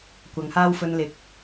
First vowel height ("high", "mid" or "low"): low